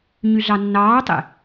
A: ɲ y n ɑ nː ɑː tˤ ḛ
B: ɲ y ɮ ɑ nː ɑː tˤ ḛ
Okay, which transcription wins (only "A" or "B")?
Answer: B